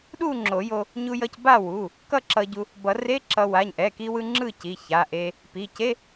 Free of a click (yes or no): no